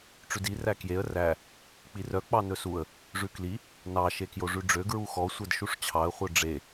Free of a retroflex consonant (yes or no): no